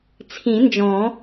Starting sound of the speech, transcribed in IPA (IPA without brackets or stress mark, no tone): t͡sʰ